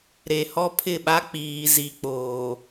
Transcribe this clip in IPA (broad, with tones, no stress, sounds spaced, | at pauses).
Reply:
ɾ e˨ h ɔ˦ pʰ ɪ˦˨ ɓ a˦ k͡p iː˨ z i˨ k͡p oː˨